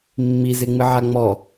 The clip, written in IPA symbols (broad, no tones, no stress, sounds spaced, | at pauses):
mː i z e ŋ͡m ɨ ʕ a ŋ͡m ɔ